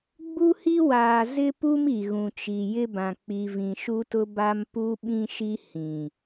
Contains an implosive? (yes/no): yes